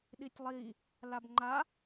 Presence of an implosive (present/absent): present